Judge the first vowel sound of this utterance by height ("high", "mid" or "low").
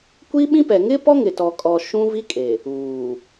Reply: high